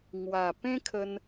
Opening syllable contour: low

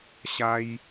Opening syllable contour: high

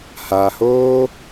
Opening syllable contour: low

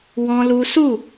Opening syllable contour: high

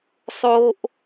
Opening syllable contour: high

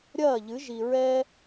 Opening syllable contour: falling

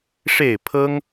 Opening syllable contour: falling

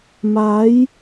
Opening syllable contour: rising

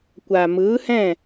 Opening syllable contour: low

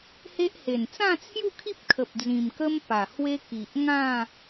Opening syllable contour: high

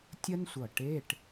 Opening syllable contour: high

